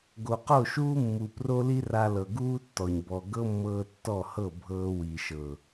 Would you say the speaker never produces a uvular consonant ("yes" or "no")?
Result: no